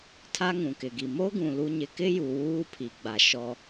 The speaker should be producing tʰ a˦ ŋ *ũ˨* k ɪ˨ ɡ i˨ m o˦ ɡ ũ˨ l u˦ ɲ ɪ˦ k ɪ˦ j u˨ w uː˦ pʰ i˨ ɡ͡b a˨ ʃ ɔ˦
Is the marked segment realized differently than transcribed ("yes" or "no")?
no